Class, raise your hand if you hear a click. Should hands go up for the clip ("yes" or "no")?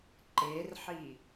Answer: yes